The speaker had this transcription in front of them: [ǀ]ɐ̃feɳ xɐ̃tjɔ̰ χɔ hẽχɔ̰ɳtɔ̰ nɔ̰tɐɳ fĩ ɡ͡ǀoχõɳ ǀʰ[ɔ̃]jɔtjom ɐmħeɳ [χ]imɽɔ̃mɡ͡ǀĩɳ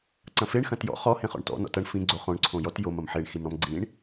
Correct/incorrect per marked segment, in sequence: correct, incorrect: õ, incorrect: x

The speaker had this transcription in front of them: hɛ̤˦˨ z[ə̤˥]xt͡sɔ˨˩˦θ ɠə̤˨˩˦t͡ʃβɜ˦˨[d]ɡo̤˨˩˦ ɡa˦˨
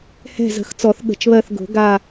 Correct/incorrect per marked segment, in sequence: incorrect: ə̤˨˩˦, incorrect: θ

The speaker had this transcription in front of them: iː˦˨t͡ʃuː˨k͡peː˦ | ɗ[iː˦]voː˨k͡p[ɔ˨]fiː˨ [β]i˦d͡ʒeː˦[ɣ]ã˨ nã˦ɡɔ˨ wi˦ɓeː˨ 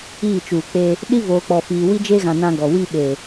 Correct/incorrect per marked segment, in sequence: incorrect: i˦, correct, incorrect: w, correct

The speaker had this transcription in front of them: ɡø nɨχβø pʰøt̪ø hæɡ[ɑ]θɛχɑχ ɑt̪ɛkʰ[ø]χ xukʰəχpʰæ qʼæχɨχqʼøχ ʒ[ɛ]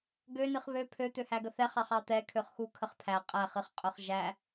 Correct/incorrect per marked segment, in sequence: incorrect: ə, correct, incorrect: æ

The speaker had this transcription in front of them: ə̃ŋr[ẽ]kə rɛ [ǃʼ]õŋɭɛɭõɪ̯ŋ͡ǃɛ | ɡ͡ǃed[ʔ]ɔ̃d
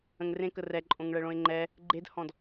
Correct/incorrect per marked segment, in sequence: correct, correct, incorrect: h

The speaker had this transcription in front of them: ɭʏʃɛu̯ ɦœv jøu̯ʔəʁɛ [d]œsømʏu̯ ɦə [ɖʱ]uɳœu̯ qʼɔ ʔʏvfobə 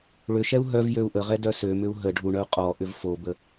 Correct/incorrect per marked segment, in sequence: correct, correct

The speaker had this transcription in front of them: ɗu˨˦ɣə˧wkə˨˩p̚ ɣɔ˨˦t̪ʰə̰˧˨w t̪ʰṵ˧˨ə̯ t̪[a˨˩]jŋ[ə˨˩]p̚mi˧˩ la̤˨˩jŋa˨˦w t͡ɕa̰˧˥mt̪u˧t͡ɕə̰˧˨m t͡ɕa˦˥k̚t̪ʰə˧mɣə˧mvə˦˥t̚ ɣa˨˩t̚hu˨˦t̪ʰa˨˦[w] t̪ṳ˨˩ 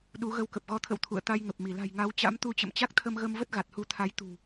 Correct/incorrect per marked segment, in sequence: incorrect: a˧, correct, incorrect: j

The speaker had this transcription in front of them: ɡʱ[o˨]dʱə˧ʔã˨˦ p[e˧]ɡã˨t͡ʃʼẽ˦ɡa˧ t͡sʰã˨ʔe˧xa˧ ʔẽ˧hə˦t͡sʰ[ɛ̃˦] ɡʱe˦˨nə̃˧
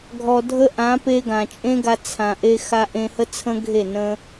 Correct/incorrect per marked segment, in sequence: incorrect: ɔ˨, correct, incorrect: ə̃˦

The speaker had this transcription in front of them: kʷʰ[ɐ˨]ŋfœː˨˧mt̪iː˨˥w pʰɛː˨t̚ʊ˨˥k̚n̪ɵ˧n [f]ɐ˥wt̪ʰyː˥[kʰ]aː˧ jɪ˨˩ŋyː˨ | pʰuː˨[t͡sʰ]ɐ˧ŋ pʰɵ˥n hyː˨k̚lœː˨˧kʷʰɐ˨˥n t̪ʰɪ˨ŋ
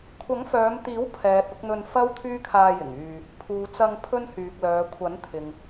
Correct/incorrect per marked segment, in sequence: incorrect: ɐ˨˥, correct, correct, incorrect: t͡s

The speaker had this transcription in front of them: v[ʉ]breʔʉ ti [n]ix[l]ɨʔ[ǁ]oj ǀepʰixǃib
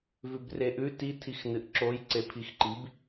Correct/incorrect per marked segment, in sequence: correct, incorrect: tʰ, incorrect: n, correct

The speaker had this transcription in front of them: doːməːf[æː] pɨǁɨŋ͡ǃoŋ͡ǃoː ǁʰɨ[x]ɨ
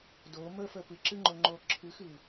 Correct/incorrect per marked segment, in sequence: incorrect: əː, correct

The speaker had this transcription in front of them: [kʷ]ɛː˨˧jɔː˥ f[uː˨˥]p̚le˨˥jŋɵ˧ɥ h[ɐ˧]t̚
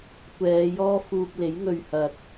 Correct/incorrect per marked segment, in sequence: correct, incorrect: uː˧, correct

